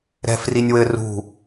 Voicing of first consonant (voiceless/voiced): voiced